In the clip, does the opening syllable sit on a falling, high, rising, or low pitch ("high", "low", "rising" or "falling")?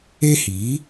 high